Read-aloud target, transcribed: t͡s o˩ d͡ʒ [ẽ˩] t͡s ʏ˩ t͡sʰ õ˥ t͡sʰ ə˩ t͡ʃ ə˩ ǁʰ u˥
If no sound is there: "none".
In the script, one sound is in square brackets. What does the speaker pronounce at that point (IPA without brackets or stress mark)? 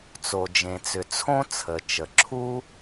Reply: ẽ˩